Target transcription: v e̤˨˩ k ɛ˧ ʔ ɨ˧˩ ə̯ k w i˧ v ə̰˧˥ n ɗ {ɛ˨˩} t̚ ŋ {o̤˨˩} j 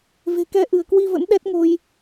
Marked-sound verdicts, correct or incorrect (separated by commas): incorrect, incorrect